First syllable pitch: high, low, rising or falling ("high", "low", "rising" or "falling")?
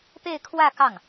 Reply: falling